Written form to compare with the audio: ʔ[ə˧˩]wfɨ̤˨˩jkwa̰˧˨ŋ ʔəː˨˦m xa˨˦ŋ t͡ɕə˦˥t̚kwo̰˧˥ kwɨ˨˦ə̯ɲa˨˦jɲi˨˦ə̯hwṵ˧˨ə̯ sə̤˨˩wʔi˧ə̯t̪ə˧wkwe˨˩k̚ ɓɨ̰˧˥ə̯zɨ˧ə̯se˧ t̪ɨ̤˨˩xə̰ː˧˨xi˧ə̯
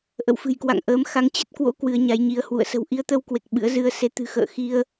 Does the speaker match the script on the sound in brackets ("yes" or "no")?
no